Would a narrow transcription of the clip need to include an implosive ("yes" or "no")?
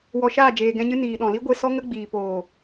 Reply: yes